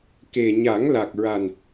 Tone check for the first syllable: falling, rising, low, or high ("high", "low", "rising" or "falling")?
low